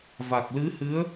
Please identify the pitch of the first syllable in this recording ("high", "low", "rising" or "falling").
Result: low